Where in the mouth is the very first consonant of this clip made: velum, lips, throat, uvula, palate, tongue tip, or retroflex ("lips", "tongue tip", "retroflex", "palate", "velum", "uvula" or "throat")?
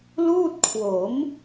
tongue tip